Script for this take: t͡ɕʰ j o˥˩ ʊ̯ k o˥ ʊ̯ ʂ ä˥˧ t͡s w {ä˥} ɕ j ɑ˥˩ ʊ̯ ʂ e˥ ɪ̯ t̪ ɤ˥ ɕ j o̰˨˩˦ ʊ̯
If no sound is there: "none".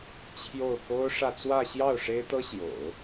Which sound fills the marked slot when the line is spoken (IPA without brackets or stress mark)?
ä˥˧